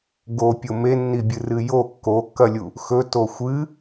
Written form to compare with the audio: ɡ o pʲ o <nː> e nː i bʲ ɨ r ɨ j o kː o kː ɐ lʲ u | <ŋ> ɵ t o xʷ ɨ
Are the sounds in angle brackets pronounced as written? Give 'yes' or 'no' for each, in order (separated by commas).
no, no